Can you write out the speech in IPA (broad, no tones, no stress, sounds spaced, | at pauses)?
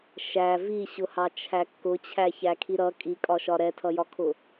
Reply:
ʃ æ v i ɕ ʊ h ɑ t͡ʃʰ æ kː ʊ t͡ɕʰ æ ç æ kʰ i ɾ ʌ kʼ i kʼ ɒ ʃ ɒ ɾ ɛ tʰ ʌ j ɒ kʰ ʊ